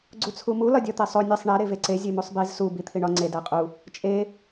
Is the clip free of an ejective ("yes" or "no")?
no